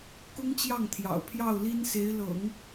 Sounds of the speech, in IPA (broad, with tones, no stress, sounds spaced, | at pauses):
k ʊ˥ ŋ t͡ɕ j ɑ˥˩ ŋ t̪ʰ j ɑ̰˨˩ ʊ̯ pʰ j ɑ˥˩ ʊ̯ l i˥ n s e˧˥ ɪ̯ l ɤ̰˨˩˦ ŋ